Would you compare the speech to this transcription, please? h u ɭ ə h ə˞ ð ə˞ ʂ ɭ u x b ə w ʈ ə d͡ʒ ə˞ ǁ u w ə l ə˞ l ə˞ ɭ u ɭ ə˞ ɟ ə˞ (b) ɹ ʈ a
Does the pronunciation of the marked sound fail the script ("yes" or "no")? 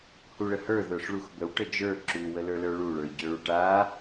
yes